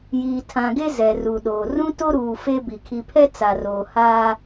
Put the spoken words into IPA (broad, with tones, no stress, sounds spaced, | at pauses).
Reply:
j iː˨ tʰ ã˨ ɡ e˦ z ɛ˨ r u˨ ɗ oː˨ r ũ˦ t o˦ ɾ uː˨ f e˦ b i˨ kʰ i˨ pʰ ɛ˦ t͡s a˨ r oː˨ h aː˦